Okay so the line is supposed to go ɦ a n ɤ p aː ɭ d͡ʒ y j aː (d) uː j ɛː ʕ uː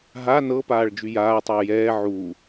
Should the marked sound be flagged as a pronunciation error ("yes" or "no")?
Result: yes